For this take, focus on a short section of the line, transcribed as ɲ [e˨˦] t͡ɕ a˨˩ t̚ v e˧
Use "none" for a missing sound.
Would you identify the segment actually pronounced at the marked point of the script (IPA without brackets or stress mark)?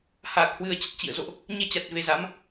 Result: e˧